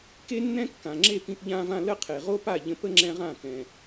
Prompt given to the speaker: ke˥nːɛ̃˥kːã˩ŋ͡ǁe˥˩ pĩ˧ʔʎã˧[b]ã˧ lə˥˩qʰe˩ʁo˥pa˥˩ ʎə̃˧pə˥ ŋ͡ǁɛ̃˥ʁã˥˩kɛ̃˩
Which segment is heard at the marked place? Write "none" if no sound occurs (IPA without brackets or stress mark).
v